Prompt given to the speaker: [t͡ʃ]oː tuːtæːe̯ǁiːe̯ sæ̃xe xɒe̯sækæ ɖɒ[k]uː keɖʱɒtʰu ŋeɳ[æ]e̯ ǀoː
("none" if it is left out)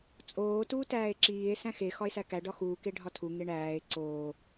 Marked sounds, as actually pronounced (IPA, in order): t͡sʼ, x, æː

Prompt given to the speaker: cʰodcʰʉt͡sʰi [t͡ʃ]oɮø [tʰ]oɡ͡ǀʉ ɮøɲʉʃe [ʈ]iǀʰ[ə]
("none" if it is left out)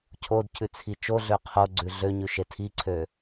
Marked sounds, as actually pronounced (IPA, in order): t͡ʃ, qʰ, tʰ, ø

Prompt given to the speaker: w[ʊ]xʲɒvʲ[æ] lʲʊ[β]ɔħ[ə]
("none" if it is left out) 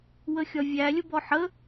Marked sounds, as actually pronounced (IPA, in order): ə, æ, b, ə

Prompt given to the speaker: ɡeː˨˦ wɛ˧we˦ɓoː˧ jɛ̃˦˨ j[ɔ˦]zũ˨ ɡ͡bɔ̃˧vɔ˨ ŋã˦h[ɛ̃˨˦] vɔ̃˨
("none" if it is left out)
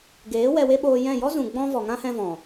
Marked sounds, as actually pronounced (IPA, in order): ɔ˦, ɛ̃˧

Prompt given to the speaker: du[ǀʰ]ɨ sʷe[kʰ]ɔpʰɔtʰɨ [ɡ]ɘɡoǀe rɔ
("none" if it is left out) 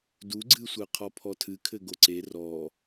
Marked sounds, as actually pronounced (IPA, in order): ɡ͡ǀ, qʰ, kʰ

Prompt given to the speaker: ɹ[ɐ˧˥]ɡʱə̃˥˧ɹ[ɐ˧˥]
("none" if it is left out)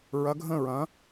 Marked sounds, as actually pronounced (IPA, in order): ɐ˧˥, ɐ̃˧˥

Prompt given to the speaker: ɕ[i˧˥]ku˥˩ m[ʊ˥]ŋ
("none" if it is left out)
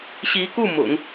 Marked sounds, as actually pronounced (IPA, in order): i˧˥, ʊ̰˨˩˦

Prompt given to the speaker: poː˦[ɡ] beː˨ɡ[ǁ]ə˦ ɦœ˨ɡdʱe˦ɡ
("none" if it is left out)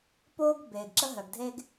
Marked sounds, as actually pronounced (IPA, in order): ɡ, ǁ

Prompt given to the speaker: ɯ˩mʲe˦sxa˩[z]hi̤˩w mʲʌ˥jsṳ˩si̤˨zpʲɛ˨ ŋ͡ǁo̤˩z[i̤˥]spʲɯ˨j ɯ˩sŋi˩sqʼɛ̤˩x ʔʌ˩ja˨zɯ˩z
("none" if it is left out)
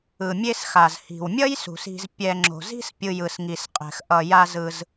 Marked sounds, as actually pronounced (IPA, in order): z, i̤˥

